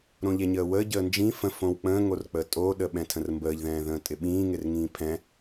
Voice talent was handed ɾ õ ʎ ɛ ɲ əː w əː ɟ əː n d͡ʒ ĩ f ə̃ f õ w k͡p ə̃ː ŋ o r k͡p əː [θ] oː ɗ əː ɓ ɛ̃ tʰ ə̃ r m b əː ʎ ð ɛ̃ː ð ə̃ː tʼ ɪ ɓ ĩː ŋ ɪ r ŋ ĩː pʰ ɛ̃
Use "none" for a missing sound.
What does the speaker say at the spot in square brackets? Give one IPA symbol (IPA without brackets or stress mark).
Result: tʼ